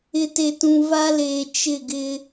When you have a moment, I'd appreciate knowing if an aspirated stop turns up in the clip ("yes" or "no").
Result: no